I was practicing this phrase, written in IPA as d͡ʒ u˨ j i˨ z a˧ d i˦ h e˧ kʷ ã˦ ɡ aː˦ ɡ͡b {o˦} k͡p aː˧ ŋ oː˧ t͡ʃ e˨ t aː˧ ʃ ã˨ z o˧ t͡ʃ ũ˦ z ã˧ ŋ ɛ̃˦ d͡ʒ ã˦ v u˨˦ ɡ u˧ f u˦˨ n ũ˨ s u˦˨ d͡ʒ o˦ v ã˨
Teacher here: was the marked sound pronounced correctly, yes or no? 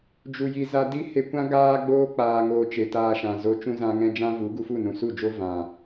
no